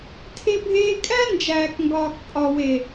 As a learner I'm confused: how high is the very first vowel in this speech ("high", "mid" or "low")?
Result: mid